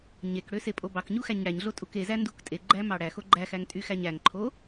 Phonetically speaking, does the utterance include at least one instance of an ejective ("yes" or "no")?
yes